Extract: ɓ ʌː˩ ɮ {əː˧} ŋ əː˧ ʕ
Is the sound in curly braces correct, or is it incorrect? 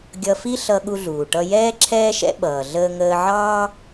correct